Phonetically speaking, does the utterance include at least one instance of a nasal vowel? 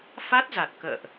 no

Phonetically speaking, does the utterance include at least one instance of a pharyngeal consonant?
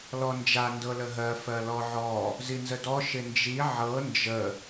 yes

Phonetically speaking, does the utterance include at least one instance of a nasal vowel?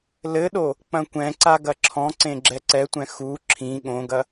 yes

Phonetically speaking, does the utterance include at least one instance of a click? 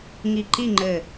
yes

